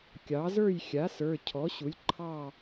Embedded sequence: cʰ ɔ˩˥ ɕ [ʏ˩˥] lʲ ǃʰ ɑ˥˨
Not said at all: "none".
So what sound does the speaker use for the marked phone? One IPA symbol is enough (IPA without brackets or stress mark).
u˩˥